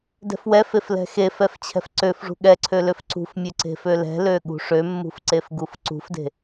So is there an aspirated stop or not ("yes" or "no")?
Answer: yes